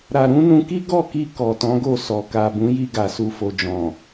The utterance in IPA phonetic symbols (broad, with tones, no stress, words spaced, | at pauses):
ɾa˨ɾũ˨˦nũ˧ki˦ ɡɔ˦˨ki˧ kɔ˨tɔ̃˨˦ɡo˦˨sɔ˨ ka˨bũ˨˦ji˧ɡa˨ su˨fo˨d͡ʒɔ̃˨